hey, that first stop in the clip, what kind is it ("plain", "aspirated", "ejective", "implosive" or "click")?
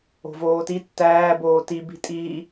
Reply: plain